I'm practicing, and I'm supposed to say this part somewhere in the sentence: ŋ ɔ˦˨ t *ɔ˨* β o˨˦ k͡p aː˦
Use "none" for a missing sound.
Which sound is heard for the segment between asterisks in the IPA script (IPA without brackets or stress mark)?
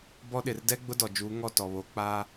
ɔ˨